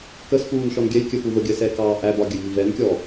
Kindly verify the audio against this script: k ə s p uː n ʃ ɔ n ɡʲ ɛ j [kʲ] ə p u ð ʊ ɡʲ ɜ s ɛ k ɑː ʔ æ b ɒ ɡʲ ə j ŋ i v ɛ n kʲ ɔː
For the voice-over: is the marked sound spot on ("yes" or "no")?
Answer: yes